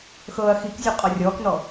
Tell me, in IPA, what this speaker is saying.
xɤːɐ̯xikzʲo qʼɔrʲɔːknɔ

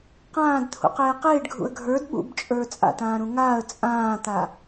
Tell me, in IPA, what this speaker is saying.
qãːdt̪ʰṵqeː qeːɖɡʱṵə̯ ɡʱə˞d ɓṵbt͡ʃʼə˞ t͡sʼa̰tãːɾũ ŋaːə̯ t͡sʼãːt̪a

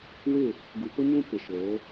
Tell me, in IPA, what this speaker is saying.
wɪ˦˨ | ɡu˨pʊ˦ɲũ˦ pɪ˨ʃo˨˦

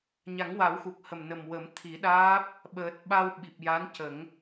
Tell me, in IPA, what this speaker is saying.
ɲa˨˩˦ŋwa˨˩˦wxu˨˩k̚ hə˨˩mnə˨˩m wə˨˩˦m t̪ʰi˨˩˦ɗaː˦˥p̚ | ɓəː˨˩t̚ ɓa˧wɓi˨˩p̚ja˧˥n cə˨˩˦ŋ

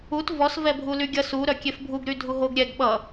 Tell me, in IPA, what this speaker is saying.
ut vɔs vɛbʱulyɡʲʌs u ɾœkʲefbʱuɡ ɾydʱuɦoɡ ɾʲɛɡ ɓʌ

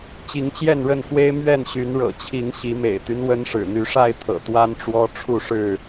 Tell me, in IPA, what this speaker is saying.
t͡ɕi˨˦ŋt͡ɕjɛ˥˨nɻə˥˨nxwe˦ɪ̯ mɥɛ˥˨nɕy˨˦nɻɤ̰˨˩t͡ɕʰi˨˦ŋ ɕi˨˦mḛ˨˩ɪ̯t̪y˦n wə˦nʂɻ̩˨˩ n̪y˨˦ʂa˥˨ɪ̯t̪ʰɤ̰˨˩ t̪wa˦nʈ͡ʂwɔ˦ʈ͡ʂʰu˥˨ʂɻ̩˥˨

